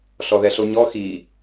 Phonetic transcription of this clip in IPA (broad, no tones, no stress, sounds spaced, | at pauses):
ɬ ɔ ð ɛ ɬ o ɲ ɔ x i